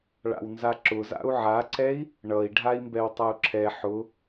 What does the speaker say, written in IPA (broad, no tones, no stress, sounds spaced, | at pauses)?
ɭ a̰ w n z a ǁ ʊ z a̰ u̯ ʕ a ǀ ɛ i̯ | ɳ ʌ i̯ ɖʱ a i̯ m b ɛ w tˤ ʌ u̯ ǁʰ ɛ ħ ʊ